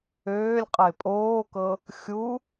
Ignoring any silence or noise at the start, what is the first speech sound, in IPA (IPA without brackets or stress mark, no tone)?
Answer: øː